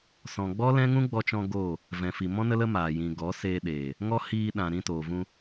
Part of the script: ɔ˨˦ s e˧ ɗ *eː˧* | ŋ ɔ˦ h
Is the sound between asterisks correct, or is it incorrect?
incorrect